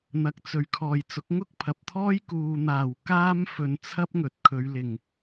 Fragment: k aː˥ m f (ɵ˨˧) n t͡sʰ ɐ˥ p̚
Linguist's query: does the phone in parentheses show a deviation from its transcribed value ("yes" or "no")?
yes